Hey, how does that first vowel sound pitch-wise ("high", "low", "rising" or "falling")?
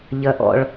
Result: low